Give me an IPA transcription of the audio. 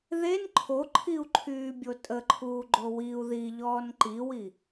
ð e n ǃʰ o ǃʰ i u̯ ǃʰ yː bʲ o tʼ ə ǃʰ uː ɡ͡ǃ o w i u̯ ð i ʎ ɔː n ǃ i w i

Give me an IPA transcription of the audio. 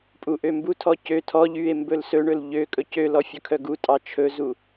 pʼ u ʔ ø m b u tʰ ɔ c ø tʰ ɔ ʎ y e̯ m b ɵ l s ɵ ɳ ɵ l ʎ ø kʼ ɵ c ø l ɔ fʲ ɵ kʰ œ ɡ u tʼ ɑ t͡ʃʰ ɵ z u

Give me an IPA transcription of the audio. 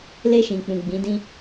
l e˧ ʃ ĩ˨ k͡p ũ˨ ɡ͡b ĩ˨˦ d ĩ˦

